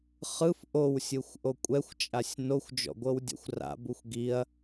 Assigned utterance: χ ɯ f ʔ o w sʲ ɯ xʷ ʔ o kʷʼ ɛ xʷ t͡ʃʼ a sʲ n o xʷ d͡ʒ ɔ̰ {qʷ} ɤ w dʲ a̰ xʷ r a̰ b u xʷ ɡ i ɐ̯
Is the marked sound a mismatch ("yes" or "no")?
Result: yes